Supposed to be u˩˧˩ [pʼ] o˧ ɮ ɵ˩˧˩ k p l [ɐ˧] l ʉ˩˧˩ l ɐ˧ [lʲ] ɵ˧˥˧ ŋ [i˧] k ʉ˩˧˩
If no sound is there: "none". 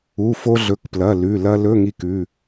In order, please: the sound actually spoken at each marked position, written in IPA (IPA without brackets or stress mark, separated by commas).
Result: f, ɐ˩˧˩, l, i˧